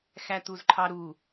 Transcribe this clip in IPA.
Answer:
x æ t̪ u z ǃʰ ɑ ɾ u

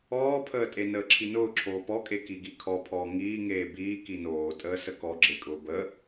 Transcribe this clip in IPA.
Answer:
ɔː pʰ əː tʼ e n əː ǁʰ i n ʊː ǁʰ oː p ɔ kʼ e k i ɡ i kʰ ɔ pʰ ɔː ŋ iː ŋ eː b iː k i n oː tʼ əː s ə k ɔ ɡ͡ǁ e kʼ ʊː b ə

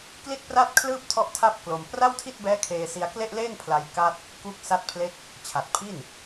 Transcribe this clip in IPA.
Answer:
k l i˥˩ t̚ p r a˥˩ t̚ kʰ l ɯː˥˩ p̚ tʰ ɔ˥˩ ʔ tʰ a˥˩ p̚ k l o˧ m p r a˥˩ w tʰ i˥˩ t̚ b ɛː˦˥ kʰ eː˧ s i˧ a̯ k l e˥˩ ʔ l eː˥˩ ŋ pʰ l a˧ j k a˥˩ t̚ | k u˦˥ k̚ s a˥˩ t̚ pʰ l e˥˩ k̚ | t͡ɕʰ a˨˩ t̚ pʰ i˥˩ n

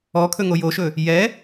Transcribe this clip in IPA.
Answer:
ɔ kʰ ɵ ŋ o j o ʃ ɵ | j ɛ

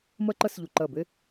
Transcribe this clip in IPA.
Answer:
m ɜ˥ ǃ ɜ˥ s ʎ u˧ ǃ ɜ˧˩ b e˥

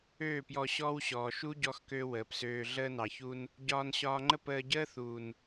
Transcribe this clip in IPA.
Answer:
øː˦˨ p j ɔ˧ ɕ ɔː˦ w ɕ ɔː˨ ʃ u˦ ɟ ɔ˧ x k ø˧ w əː˨ p s øː˧ ɮ əː˧ n ɑ˨ ç u˧ n | ɟ ɒː˧ n ɕ ɒː˧ ŋ͡ǃ ə˦ p əː˧ ɟ əː˦ θ uː˨ n

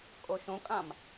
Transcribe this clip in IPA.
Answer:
kʼ o ʃ õ kʼ ã m

